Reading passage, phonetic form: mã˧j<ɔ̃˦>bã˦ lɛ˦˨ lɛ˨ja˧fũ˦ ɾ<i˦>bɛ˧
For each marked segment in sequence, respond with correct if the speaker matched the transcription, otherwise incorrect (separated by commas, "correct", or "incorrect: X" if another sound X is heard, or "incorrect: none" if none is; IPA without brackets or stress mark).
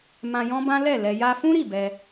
correct, incorrect: i˦˨